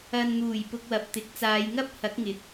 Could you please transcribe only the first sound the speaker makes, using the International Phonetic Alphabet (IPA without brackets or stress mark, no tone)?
ɐ